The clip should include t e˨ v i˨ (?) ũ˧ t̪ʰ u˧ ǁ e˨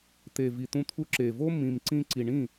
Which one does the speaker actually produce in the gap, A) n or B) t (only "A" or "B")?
B